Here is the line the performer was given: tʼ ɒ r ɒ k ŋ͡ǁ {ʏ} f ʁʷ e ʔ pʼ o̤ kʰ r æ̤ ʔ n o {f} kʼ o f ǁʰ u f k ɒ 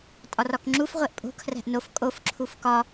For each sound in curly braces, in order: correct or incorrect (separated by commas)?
incorrect, correct